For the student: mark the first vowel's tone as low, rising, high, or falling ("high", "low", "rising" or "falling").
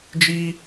high